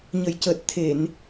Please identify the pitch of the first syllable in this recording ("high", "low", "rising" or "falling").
low